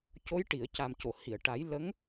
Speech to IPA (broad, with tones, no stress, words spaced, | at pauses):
co˧˥jʈi˨˩˨ə̯ ca˨˩mco˨˩˨hi˨˩˨ə̯ʈa˨˩˦j lə˧˥ŋ